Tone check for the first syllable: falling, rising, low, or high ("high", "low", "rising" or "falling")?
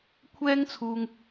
high